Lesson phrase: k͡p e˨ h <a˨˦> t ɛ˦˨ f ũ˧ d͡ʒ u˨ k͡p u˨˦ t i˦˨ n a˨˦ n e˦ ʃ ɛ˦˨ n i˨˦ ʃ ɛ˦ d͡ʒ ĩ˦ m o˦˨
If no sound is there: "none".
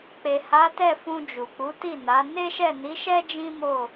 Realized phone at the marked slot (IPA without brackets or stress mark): a˨˦